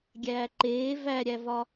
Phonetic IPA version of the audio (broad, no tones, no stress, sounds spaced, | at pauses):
ɡʲ æː ǃ eː v æ ɾʲ æ v ɒ